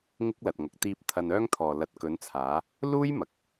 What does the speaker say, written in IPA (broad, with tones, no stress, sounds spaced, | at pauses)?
ŋ ɪ˥ k̚ l ɐ˨ t̚ ŋ ɐ˨ k̚ t̪ iː˧ p̚ t̪ʰ ɐ˧ n œː˥ ŋ t̪ʰ ɔː˨ l ɐ˨ t̚ k ɵ˨˧ n t͡sʰ aː˨˧ | l uː˥ j m ɐ˨ k̚